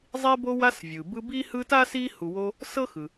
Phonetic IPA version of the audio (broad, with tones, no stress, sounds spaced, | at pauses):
zˤ i˦ b o˦ w a˦ s vʲ ɯ˩ b ɯ˦ b i˥ h ɯ˦ t a˥ s i˦ h u˨ w o˦ | s ɤ˥ x ɯ˩